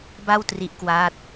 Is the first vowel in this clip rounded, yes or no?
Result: no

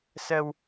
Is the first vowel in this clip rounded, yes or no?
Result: no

